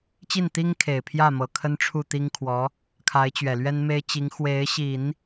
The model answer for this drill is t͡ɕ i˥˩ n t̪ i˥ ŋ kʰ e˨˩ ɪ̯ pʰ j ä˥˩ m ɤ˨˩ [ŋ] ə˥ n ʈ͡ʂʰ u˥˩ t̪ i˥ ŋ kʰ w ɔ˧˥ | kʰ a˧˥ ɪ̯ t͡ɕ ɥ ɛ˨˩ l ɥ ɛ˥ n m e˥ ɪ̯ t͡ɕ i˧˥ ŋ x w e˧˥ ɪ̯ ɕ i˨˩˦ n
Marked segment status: incorrect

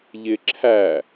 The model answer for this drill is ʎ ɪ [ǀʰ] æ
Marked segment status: incorrect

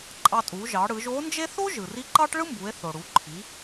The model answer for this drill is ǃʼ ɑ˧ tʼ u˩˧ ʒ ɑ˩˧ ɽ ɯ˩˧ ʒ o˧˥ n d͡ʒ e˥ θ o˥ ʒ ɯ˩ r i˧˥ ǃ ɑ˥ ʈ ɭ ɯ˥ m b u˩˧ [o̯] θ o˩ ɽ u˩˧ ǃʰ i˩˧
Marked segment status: incorrect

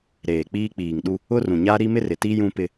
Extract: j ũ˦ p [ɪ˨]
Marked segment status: incorrect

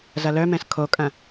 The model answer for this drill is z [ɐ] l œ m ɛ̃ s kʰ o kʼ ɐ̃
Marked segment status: correct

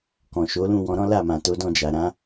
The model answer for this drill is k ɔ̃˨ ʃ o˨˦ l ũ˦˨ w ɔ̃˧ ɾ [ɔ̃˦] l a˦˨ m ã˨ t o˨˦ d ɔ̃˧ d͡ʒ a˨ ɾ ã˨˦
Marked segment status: correct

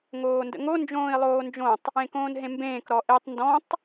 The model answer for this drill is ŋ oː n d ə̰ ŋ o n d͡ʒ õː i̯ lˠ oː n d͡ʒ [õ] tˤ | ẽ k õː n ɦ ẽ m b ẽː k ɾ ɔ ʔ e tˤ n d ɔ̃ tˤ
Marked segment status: correct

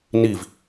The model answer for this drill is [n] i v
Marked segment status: correct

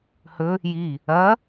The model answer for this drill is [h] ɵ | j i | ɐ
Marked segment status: correct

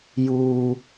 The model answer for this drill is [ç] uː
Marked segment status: incorrect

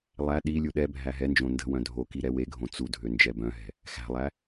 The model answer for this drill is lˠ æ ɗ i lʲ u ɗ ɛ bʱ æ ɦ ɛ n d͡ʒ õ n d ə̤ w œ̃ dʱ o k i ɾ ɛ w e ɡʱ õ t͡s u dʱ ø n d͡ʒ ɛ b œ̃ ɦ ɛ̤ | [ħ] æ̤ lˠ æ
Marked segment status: incorrect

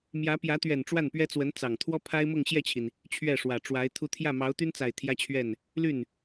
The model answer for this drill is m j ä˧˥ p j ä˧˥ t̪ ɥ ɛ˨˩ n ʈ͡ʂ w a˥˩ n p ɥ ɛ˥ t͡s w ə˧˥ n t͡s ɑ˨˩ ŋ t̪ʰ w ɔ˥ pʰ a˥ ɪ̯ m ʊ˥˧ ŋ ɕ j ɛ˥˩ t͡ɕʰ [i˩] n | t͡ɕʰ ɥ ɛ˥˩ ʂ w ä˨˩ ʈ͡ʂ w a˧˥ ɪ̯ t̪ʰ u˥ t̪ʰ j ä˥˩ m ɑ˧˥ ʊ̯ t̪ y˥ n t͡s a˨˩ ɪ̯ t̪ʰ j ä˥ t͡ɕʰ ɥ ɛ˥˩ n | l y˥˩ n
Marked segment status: correct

